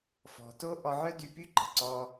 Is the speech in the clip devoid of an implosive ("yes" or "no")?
yes